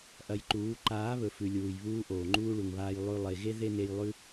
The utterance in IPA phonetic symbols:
ʔɐ˧jǃuː˨˦ ǃaː˨˦βɵ˨fʉ˨ lʲuː˨jβuː˧ ʔoː˨ŋ͡ǃuː˦ɭu˨ŋβaː˧j lˠʉ˧ lˠe˨ɣe˦ ðe˦ne˧jlˠʉ˦

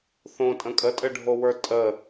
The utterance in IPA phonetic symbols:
θõtʼə̃ kʼətʼɘɖʱowə˞ tʼə

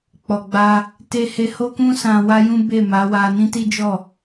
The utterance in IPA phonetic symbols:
k͡pɔ˨ɡ͡ba˧ | te˦ he˧ho˦kũ˦sã˧ wa˦jũ˦ be˦˨ma˨˦wa˧ nĩ˦ti˦d͡ʒɔ˦˨

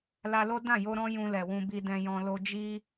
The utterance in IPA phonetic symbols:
la˧lo˦ dã˦˨jo˧ ɾɔ̃˦jũ˧lɛ˨wũ˧ bi˧dɛ̃˧jɔ̃˧ lo˧d͡ʒi˦

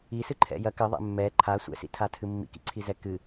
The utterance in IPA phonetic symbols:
isɨǃʰɛ̰ jɐ kɘðˤɛ̰ mːɛ ǃʰa sʷɛ̰sḭtʰatʰɨ mːḭkḭǀʰizɛ kɨ

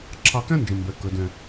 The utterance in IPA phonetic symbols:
ǁʰɑ˧kæ̃˥nd͡ʒə̃˩mbɛ˩ kə˩dɛ̃˩

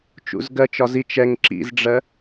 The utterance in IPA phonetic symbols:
t͡ʃṵzɡɜt͡ʃɒ zit͡ʃ ɛŋ ǁḭzɖ͡ʐɜ

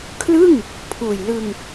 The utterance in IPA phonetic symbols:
kʰlɯ˥˩ŋ | pʰuː˨˩j lɯ˧ŋ

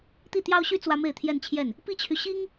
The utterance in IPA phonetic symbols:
t̪i˥˩t̪jɑ˥ʊ̯ɕy˥ t͡swä˥me˥˧ɪ̯t̪ʰjɛ˥˧nt͡ɕʰjɛ˥˩n | pi˥t͡ɕʰy˨ ɕi˥ŋ

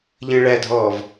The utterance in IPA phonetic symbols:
ʎə̃ːɭædʱɔːv

